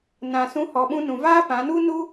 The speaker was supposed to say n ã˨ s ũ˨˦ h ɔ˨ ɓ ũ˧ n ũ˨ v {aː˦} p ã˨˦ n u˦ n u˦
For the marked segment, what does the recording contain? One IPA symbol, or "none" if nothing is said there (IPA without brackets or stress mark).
aː˦